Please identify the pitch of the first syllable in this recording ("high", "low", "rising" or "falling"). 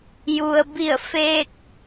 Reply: low